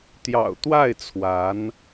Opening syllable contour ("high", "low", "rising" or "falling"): low